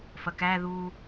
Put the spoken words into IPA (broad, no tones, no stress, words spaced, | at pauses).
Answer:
fɐkæðuː